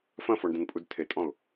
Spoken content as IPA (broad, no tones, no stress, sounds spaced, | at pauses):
f ɐ̃ f ɔ ɳ d ɐ̃ n pʼ u d tʰ e tʼ ɔ̃ ʊ̯